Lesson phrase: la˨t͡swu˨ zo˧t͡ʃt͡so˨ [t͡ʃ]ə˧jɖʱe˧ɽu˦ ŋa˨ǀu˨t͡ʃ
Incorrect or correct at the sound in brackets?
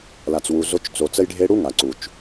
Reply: incorrect: t͡s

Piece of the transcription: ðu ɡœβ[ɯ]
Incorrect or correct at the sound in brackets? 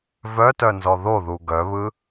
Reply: correct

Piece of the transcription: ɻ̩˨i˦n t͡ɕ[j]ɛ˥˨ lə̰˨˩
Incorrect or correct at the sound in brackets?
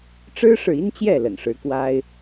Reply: correct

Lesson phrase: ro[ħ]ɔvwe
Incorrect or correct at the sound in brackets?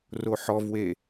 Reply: correct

